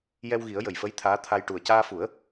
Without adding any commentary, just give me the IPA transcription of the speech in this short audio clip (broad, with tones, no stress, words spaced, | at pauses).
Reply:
jɛ˧wɣi˨˩˦ə̯ jə˨˩jfə˧˥j t̪ʰaː˧˥t̪ʰa˧j ʈu˨˩ə̯caː˧fu˨˩˦ə̯